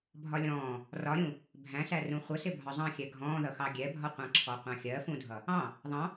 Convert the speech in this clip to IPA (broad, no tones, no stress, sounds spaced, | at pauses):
bʱ ɒ lʲ ɔ̃ː | r ɒ ɾʲ ũ | bʱ æ̃ s æ r ũ χʷ ə s ɪ bʱ ɒ zˤ ɑ̃ xʲ ɛ ɡʱ ɔ̃ː ð ʌ x ɑ ɡʲ ɛ bʱ ɒ qʷ ɑ̃ ǁʰ ɔ qʷ ɑ̃ xʲ ɜ f ũ dʱ ʌ | ɑ̃ | ðˤ ɑ̃